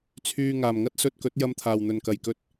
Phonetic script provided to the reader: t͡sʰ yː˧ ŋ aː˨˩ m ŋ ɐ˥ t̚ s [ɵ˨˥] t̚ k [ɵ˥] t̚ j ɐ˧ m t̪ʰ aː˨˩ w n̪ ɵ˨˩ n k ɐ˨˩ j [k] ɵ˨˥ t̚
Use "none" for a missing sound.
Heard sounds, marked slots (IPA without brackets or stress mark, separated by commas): ɵ˧, ɵ˨˥, k